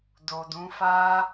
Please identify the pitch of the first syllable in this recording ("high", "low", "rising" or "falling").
low